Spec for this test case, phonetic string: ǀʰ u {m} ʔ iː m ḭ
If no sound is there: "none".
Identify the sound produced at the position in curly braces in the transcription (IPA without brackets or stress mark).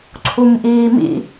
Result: m